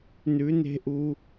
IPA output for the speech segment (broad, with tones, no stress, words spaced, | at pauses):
nʉ˨˦ne̤˦ʔu˧